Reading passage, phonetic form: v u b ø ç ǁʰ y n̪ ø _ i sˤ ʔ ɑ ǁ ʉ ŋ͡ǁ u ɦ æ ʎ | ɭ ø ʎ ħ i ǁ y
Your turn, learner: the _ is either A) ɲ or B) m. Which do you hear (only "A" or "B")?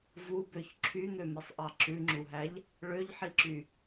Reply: B